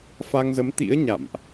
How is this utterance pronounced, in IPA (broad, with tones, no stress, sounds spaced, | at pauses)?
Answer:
f a˧ ŋ z ə˨˦ m t̪ ḭ˧˥ ə̯ ɲ a̰˧˨ m ʔ